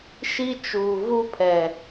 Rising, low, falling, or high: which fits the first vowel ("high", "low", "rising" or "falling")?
high